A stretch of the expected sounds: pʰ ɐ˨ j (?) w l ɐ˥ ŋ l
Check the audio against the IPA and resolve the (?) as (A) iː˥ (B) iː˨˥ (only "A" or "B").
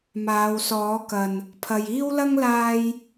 A